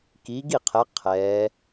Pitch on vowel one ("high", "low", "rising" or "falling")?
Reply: rising